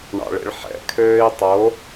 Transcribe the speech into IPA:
ɳ ɑ̰ ɭ ḛ ɭ ħ ɛ̰ kʰ øː i̯ tˤ o

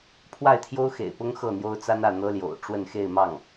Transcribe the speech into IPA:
pʰ w a˥˩ ɪ̯ t̪ʰ j o˥ ʊ̯ x ḛ˨˩ ɪ̯ p ʊ˥ ŋ x ɤ˥˩ n̪ j o˥ ʊ̯ t͡s a˥ n ä˥˩ n̪ ɤ˥ l j o̰˨˩ ʊ̯ ʈ͡ʂ w ə˥˧ n x e˥˧ ɪ̯ m ɑ˥˩ ŋ

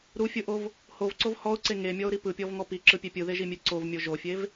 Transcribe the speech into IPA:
ɾ u fʲ ɯ ʔ o v | h o v ǀ o v h ɔ ʊ̯ ǀ e ŋ e mʲ ɔ ʊ̯ ɾ i p ɯ pʲ ɔ v ŋ ɔ p i ǁ ɯ pʲ e pʲ ɯ ð e ʒ i mʲ e ǀ o v mʲ o ʒ o fʲ e v

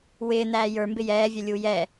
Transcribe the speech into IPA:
w ɪː n æː j ə˞ m b ɪ j ɛː vʲ ɛ lʲ u j ɛ

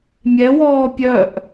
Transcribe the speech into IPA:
mʲ ɛ w ɔː pʲ œ ʔ

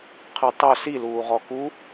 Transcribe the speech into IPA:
qʰ ɨ tˤ ɵ s i l uː ʁ ɔ k u

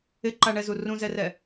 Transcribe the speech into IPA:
ɪ ǃ a ɳ ɛ z u r ũ z ɛ r ɛ

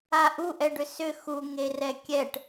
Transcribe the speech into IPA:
a ʔ u ʔ ɛ ɖ ʏ s ʏ x u ŋ e r ɛ kʲ ɛ ʈ

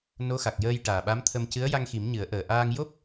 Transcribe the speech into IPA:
n o˧˥ x a˨˩ k̚ j əː˧ j ʈ aː˨˩ ɓ a˧˥ m t̪ʰ ə˧ m c ɨ˧˥ ə̯ j a˧ ŋ x i˨˩˦ m ɲ ɨ˨˩˦ ə̯ ʔ əː˨˩ ʔ aː˧ ŋ j o˦˥ p̚

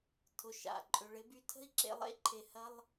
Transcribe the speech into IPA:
tʰ ʊ˩ ʃ a̰˩ ǃʼ ʏ˩ ɭ ɪ˧ b y˧ tʰ ə̤˥ i̯ ǁ ḛ˧ lˠ ḛ˥ ǃʰ e˩ h ɐ˧ lˠ

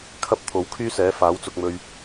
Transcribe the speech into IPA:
kʰ ɐ˥ p̚ t̪ʰ o˨˥ w kʰ yː˥ s ɛː˨˥ f aː˨˥ w t͡s ʊ˨ k̚ m ɵ˨ ɥ

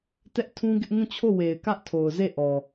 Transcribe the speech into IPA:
t ɛ˦ ʔ tʰ ũ˦ ɡ ɪ˦ ʔ ŋ ũ˦˨ t͡ɕʰ o˦˨ w e˨ ɪ̯ k ä˦ ʔ tʰ o˨ ʊ̯ z e˦˨ ʔ ɔ˨

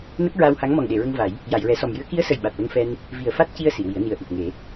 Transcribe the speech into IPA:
n ə˦˥ k̚ ɹ a˧ w h a˧˥ ŋ m ɔ˨˩ ŋ ɗ e˨˩˨ ɹ ə˧ ŋ v a˨˩˦ j | j a˨˩˨ j ɹ ɛ˨˩˦ s ɔ˨˩ m j ɨ˧˥ ə̯ k i˧˥ ə̯ s ə˨˩ j ɓ a˨˩ t̚ l ə˧ ŋ f ɛ˧ n | v i˨˩ ə̯ f a˦˥ t̚ c i˧ ə̯ s i˨˩˨ w i˨˩˦ ə̯ n i˨˩ ə̯ ʔ i˨˩ t̚ ŋ e˨˩˦

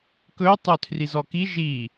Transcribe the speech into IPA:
k ɵ tˤ ɵ tʰ r i z ɔ k i ʒ i

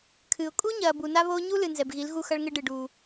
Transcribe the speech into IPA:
kʰ ɨː˨ ʊ̯ kʼ u˦ ɲ ɐː˨ b u˨ n a˦ β oː˦ ɲ u˦ l ɨ˨ n z ɛ˨ b ɣ i˨˦ l ɣ u˦ x ɐ˦ ɭ ŋ ɘ˦ ɖ ɨ˨ ɖ u˦

